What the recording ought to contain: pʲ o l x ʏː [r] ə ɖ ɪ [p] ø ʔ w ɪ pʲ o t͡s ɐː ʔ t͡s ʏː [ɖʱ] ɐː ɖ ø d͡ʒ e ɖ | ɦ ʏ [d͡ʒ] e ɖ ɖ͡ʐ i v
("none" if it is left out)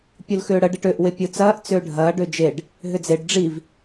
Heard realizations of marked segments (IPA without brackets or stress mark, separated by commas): ɽ, ʈ, ɖʱ, d͡z